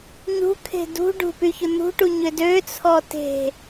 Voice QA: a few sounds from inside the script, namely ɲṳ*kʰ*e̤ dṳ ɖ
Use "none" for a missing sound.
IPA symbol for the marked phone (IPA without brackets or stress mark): kʰ